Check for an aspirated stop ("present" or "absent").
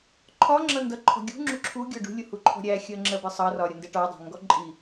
present